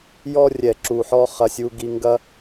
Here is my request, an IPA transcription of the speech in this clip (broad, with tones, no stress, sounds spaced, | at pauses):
j ɔ˦ rʲ ɛ˨ ǁ u˨ ħ ɔ˦ χ ɐ˦ sʲ u˦ ɡ i˦ ŋ ɡ ɐ˦